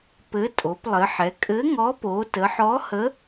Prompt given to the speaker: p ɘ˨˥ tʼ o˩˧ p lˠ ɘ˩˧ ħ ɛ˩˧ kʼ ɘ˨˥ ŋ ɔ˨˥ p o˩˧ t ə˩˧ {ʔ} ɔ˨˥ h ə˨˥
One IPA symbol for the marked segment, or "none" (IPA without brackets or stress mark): ħ